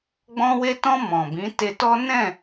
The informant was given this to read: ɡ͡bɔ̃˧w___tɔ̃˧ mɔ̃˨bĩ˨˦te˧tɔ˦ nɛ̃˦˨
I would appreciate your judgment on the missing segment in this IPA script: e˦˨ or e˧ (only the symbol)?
e˧